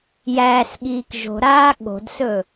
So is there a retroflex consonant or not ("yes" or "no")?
no